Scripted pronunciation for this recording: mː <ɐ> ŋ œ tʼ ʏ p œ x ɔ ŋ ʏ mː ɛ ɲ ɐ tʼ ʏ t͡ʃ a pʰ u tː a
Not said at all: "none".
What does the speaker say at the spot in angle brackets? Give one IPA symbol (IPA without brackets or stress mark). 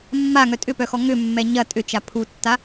a